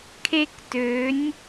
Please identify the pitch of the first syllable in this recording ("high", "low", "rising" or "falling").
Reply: high